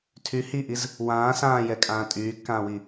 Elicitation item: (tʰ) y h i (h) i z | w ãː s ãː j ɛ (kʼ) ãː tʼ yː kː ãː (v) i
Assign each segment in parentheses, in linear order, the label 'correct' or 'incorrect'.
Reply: correct, incorrect, correct, incorrect

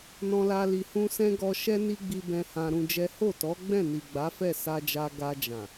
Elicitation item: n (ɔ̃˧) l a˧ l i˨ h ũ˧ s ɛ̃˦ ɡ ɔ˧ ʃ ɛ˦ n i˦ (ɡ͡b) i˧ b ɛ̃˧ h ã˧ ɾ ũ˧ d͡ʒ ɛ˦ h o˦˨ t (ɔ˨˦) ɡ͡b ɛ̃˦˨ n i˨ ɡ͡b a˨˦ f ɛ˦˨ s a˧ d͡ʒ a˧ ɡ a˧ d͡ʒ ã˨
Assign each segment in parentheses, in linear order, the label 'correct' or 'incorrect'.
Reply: correct, correct, correct

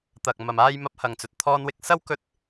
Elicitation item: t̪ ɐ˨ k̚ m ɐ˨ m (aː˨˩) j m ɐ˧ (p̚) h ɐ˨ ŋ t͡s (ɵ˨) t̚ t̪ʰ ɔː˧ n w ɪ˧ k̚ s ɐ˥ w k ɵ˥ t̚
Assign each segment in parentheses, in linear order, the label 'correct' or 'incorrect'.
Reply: incorrect, correct, correct

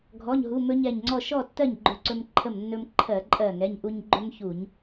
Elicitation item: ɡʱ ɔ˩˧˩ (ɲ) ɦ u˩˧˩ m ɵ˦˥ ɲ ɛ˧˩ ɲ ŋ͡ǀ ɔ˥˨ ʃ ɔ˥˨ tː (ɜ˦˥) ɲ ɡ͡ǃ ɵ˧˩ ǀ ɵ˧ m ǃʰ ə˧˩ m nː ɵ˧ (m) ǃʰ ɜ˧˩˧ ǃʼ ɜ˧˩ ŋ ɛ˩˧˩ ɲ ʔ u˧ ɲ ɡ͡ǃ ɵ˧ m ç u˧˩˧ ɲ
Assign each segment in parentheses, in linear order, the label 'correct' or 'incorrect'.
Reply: correct, incorrect, correct

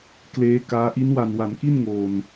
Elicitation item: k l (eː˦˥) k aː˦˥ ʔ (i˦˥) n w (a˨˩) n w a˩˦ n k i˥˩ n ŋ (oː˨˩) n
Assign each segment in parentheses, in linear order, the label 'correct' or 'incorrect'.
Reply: correct, correct, correct, correct

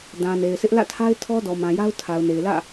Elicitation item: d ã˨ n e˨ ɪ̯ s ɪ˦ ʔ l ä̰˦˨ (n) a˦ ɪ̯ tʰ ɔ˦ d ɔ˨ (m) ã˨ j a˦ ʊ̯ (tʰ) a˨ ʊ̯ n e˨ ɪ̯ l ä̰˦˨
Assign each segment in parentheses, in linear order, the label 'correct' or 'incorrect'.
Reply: incorrect, correct, correct

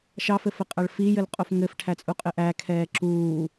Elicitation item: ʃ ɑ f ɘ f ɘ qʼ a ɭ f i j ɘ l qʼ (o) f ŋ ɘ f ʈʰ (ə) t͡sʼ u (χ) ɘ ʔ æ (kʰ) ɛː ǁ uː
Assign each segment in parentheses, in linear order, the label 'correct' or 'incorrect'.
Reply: correct, incorrect, incorrect, correct

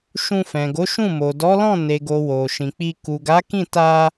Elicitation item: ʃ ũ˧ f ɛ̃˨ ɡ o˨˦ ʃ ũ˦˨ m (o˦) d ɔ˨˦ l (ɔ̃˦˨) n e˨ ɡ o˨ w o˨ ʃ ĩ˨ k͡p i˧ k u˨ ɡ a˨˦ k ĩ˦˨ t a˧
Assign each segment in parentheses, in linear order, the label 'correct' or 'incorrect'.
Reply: incorrect, correct

